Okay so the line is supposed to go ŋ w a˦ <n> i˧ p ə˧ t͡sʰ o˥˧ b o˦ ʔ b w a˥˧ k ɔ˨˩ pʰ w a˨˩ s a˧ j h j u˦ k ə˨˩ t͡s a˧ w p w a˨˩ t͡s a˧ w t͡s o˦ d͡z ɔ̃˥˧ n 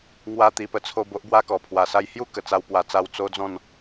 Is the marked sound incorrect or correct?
incorrect